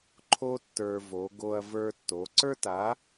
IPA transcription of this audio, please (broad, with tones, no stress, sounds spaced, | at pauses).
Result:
ǃʰ o˥ tː ə˞˧ v o˩˧ ɡ o˧ ɐ̯ v ə˞˧ tː o˩˧ ǀ ə˞˥ t a˨˥